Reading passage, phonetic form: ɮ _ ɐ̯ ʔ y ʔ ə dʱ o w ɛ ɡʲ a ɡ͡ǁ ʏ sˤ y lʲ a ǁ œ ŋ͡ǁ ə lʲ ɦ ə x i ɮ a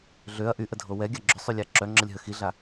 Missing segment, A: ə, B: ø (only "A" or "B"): B